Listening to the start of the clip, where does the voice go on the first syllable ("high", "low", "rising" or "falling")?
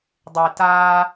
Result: low